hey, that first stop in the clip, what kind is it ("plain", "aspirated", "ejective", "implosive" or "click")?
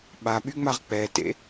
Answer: implosive